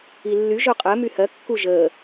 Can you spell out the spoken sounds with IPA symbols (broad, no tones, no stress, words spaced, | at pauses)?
ilːy ʒoqʼɜ myhɜ kːuʒəː